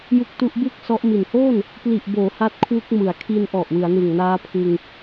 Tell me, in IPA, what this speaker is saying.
j u˦˥ k̚ t u˦˥ ʔ b ɯ˥˩ k̚ s ɔ˦˥ ʔ m i˨˩ n h oː˥˩ n | p l i˨˩ ʔ b oː˩˦ h a˦˥ t̚ kʰ w u˦˥ k̚ m ɯ˩˦ a̯ kʰ i˧ n ʔ ɔ˨˩ ʔ w ɯ˩˦ a̯ n ɯ˨˩ ŋ n aː˦˥ pʰ ɯ˧ ŋ

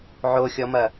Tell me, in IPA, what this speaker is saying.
ʕ o xʲ ɔ m ɐ

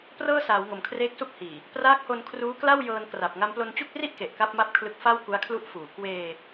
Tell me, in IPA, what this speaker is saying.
p r ɤː˥˩ s aː˩˦ w ŋ o˩˦ m kʰ r eː˦˥ k̚ s u˥˩ k̚ h iː˨˩ | p r aː˦˥ k̚ h o˧ n kʰ r uː˦˥ k l a˥˩ w j ɤː˧ n k r a˨˩ p̚ ŋ a˧ m p l o˧ n t͡ɕ u˥˩ k̚ r i˥˩ ʔ k e˨˩ ʔ k a˥˩ p̚ m a˥˩ p̚ kʰ l ɯ˦˥ k̚ f a˥˩ w k u˦˥ a̯ kʰ l u˦˥ ʔ f uː˩˦ k w eː˧

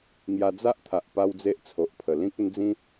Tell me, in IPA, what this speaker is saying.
ŋ j a˧ d͡z a˦ ʔ t̪ʰ a˨ ʔ p a˦ w d͡z e˦ ʔ t͡sʰ o˨ ʔ pʰ ə˨˩ l ĩ˦ k̚ ə˦ n d͡z ĩ˦

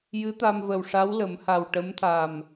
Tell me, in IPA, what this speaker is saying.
j ɨ˧˥ t̪ a˧ m v ə˨˩ w ʂ a˧˥ w l ə˨˩˦ m h a˨˩ w ʈ ə˧˥ m t̪ʰ a˨˩ m

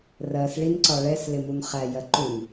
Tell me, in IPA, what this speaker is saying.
r ɜ s ɭ i n ǀ ɒ ɭ ɛ s l ɪ m u n χ æ j ɜ ǃ u n

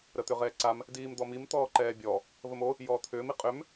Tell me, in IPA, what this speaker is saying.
ɾ ə t̪ ʏ ʁ ɛː ǀ a m | d iː m d̪ ɔ m i m t̪ ɔː ǃ ɛː bʲ ɔ | v ə m o | j ɔː t̪ʰ ʏː m i qʼ ʏ m

